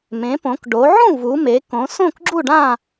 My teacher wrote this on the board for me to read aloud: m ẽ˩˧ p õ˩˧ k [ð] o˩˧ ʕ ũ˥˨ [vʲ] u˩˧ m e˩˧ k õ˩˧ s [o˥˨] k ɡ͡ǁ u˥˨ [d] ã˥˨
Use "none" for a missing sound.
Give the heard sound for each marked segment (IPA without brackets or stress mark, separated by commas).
ɖ, v, õ˥˨, ɖ